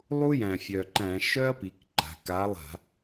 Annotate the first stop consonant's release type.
click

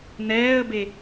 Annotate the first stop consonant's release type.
plain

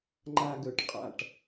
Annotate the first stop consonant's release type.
click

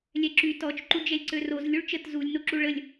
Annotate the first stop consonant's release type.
click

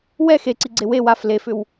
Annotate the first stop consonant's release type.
click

